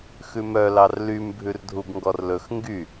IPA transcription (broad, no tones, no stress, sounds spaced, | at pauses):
x ʉ m œ l ɑ r l y m bʱ ʉ r dʱ u b ŋ ɡ ɔ r l ɵ x ŋ ɡ y